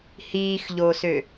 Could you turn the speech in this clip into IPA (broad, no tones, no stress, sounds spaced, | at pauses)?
h iː x ʎ oː s ø